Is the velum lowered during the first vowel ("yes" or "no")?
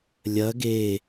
no